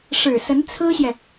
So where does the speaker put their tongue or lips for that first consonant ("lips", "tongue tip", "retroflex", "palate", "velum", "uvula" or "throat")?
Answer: retroflex